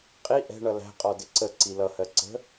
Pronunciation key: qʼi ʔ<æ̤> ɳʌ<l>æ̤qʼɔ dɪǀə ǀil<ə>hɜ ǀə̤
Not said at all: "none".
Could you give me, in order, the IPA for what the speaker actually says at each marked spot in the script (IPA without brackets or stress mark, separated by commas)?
ɛ̤, l, ʌ